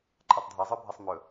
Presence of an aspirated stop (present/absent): absent